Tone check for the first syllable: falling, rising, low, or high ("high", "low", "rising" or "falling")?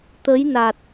rising